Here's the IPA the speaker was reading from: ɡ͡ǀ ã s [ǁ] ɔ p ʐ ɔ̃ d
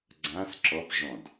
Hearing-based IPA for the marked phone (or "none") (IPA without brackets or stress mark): ǁ